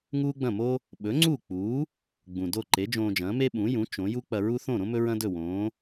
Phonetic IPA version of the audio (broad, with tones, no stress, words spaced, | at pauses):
ŋuː˥ɡ͡bɐ̃˥˩mo˥ | ɓɵ˩˥ŋ͡ǀuː˥˩k͡puː˩˥ | ɡ͡bũ˩do˥˩ ǃe˩˥d͡ʒõː˧d͡ʒɐ̃ː˩˥ me˥ɓũ˩˥jũ˩˥ t͡ʃõ˩˥ ju˥k͡pɐ˧ɹu˥ θõ˥˩ɾõ˥ mɵ˥ɹɐ̃˥ dɵ˥˩wõː˩˥